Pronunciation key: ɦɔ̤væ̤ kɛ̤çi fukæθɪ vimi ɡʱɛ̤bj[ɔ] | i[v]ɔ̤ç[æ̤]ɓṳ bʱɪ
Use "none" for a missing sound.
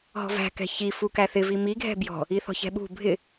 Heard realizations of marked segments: ɔ̤, θ, ɛ̤

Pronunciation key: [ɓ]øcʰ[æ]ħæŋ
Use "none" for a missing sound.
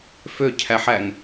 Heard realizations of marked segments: f, æ

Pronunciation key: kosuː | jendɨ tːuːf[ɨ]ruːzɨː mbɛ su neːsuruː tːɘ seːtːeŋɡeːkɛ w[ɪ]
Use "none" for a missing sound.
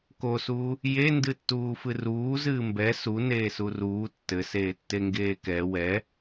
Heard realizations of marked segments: ɨ, ɛ

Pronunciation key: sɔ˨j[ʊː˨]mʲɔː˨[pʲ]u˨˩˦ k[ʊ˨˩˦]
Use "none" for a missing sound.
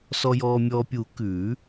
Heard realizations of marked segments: ɔː˨, pʲ, ʉ˨˩˦

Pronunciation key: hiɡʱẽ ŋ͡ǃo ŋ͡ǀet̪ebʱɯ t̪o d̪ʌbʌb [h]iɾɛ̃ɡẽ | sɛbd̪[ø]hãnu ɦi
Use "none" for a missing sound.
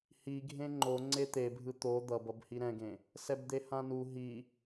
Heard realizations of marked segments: h, e

